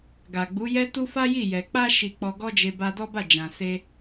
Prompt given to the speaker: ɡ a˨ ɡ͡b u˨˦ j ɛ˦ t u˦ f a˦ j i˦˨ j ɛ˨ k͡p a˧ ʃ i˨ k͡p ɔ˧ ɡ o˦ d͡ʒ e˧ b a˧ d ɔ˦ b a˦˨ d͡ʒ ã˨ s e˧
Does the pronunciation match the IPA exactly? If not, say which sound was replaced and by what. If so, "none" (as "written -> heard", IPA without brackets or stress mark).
o˦ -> ɔ˦